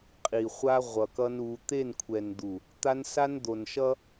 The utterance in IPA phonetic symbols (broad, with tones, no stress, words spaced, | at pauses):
qʼi˨χʷa˦ ʁʷʌ˨kʌ˦nu˨˦ t̪e˦˨nkʷʰɛ˨nd̪u˨ | t̪a˦nsa˦nd̪o˨nʃʌ˦